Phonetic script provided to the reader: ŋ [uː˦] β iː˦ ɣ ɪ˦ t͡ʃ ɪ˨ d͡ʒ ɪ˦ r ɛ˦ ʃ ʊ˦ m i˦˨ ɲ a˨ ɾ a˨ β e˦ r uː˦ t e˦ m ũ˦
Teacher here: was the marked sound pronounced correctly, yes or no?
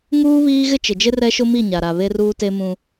yes